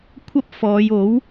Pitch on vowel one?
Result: high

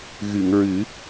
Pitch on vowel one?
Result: low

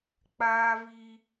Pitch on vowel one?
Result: high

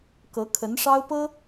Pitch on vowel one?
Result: rising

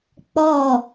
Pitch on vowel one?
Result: falling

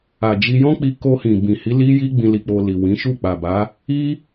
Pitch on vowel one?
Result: low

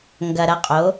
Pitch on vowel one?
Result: low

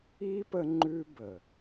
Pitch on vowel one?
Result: high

